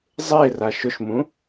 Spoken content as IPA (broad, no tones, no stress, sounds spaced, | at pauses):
zˤ e r a ʃ ʊ ʃ m ũ